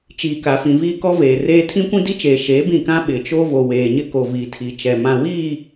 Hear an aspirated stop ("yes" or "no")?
yes